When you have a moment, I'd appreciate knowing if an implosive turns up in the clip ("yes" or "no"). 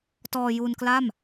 no